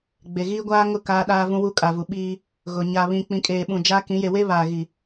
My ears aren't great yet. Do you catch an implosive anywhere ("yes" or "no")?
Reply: yes